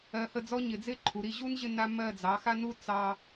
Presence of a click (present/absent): present